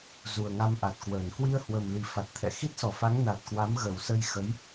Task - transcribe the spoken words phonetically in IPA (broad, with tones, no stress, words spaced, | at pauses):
zu˨˩ə̯ŋa˧mʔa˨˩t̚kwəː˧˩n kwi˧ə̯hwə˨˩mli˨˩ fa˨˩t̚t̪ʰɛ̰˧˨ xi˦˥t̚sɔ˧˩fa˨˦ŋ na˨˩t̚kwa˨˦m ɣə˨˩wsə˧j xə˨˦j